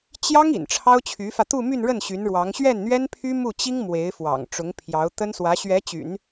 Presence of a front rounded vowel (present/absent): present